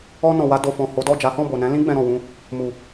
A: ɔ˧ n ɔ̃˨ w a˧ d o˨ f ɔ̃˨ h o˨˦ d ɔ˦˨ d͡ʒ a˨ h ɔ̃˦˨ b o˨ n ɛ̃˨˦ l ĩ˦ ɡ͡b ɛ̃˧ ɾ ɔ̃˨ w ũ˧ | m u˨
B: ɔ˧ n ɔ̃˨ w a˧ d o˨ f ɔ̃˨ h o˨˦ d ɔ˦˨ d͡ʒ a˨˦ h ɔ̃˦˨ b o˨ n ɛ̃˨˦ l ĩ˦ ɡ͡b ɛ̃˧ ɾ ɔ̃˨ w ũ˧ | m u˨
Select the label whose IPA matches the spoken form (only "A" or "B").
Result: B